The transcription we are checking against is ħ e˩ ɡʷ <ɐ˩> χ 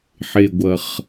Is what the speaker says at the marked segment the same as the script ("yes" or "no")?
yes